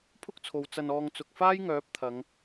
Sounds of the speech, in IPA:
pʰʊ˥k̚t͡sʰo˨w t͡sɐ˧nɔː˧ŋ t͡sʊ˨k̚faː˥jŋœː˨˥p̚ t̪ʰɐ˨˧ŋ

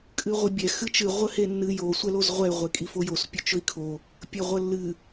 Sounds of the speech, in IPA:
kʼɨʁʷɨbʲɛ xɨt͡ʃɨ ʁʷəhenːɨ jo sʷɛlozʁʷɛy̯ ʁʷekʼifojos pʲɵt͡ʃɵi̯kʰo | pʲəʁʷəlːɨ

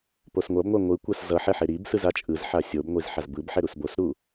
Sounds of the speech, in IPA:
posŋʷʌbŋʷa ŋʷɯkʷas zʌħɛ ħeɾibsɯz at͡ʃʼɯzħa sʲobŋʷiz ħazbɯbħɛ ɾusbosɾu

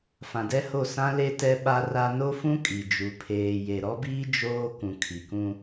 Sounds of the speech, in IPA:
fã˨dɛ˦ho˦˨ sã˦le˦ tɛ˦ɓa˦ra˦ no˦fũ˦ kʼi˨d͡ʒu˨ pʰeː˨je˨ ɾɔ˦biː˦ d͡ʒoː˦ kũ˨ kʰi˨kũ˦

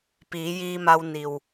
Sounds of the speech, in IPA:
piː˩˧jiː˧ma˧w ni˩w

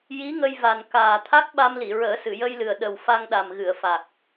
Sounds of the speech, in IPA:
ji˧˥ŋə˧jva˨˩n kaː˨˩ t̪ʰa˦˥k̚ɓa˧mli˨˩˨ ɹəː˨˩˦sɨ˨˩˨jə˧jlɨ˨˩ə̯ ɗə˨˩w fa˧ŋɗa˨˩mɣɨ˨˩˨ə̯fa˨˩k̚

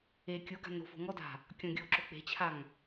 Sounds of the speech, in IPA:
e kʲoɡa̤ no̤fo̤ ŋɔda̤ | kʲɔ̃ɡʲoǁo k͡pe̤t͡ɕʰaŋ

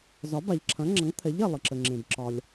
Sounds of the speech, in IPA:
zɒ˩˥ba˩ʎǁʰɐ̃˩˥ŋ͡ǁʌ˩˥ŋ t̪ʰɛ˩˥ʎ ɛ˩lˠə˩ǁə˩ŋ͡ǁẽ˩b ǁɒ˩lʲ

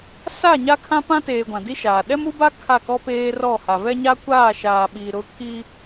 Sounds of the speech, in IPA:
sa˦˨ ɲa˦kʰã˦pã˦teː˨ ɡʷã˨di˦ʃaː˨ ɗɛ˦mu˦ba˦ kʰa˦˨kɔ˦peː˦ rɔ˦˨ha˨ vɛ˦ɲa˦kʷaː˦˨ʃaː˨ ɓi˨ ɾʊ˦kʰi˦

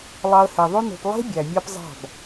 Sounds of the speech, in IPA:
lˠɑ˧ə̯he˨ðˤø˦no̤˧p lˠe̤˦ bʲæ˨mʲɑ˦p zˤɑ̤˦˨b

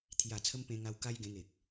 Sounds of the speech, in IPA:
t̪ʰja˨˩t͡sʰə˧m pẽ˧ŋa˧w ka˦jɡẽ˧ŋe˨k̚

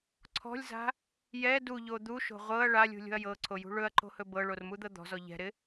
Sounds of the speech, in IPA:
ǀʰɔ̤lʲza̤ | jɛ duʎo d̪uʃo̤ ʁʷɤɐ̯ ɭalʲṳlʲo̤ɐ̯ jɤǀʰojṳ ɭɵɐ̯ǃo̤hɵ bɤɭormud̪ɤ d̪ɔ̤zɔ ʎɛ̤ɾɪ

